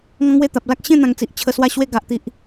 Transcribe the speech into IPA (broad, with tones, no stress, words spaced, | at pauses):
ŋɔ̃˦ŋwe˥˧ t̪a˨p̚la˦k̚ ɕẽ˥˧ n̪ã˨˩ŋt͡si˨ʔ t͡ɕʰə˧swa˥˧ɕwe˥˧ ɡa˨ʔt̪i˨ʔ